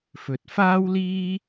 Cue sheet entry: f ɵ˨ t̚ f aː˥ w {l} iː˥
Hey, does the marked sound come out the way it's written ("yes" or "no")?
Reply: yes